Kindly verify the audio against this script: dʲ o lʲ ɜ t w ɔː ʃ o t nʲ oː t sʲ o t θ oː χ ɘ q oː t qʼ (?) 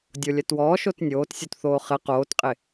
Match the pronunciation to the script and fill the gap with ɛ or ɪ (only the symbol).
ɪ